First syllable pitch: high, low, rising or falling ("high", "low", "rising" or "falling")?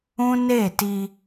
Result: high